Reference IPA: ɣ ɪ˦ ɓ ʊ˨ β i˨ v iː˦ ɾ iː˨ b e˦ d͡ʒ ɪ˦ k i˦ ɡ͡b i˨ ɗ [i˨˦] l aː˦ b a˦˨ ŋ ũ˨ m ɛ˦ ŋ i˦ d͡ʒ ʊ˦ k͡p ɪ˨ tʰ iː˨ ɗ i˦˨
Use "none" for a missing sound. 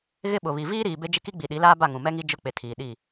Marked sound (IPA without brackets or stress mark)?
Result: i˨˦